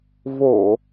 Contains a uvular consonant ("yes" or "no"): no